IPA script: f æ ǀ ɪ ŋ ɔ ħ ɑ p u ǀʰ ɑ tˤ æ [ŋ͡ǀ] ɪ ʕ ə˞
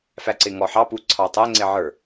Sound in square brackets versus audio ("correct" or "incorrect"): correct